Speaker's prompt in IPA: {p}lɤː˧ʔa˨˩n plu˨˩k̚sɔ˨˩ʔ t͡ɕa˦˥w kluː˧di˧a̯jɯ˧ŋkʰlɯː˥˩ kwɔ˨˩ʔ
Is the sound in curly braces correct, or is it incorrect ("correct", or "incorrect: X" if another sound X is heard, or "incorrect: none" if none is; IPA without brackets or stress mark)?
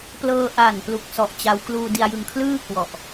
correct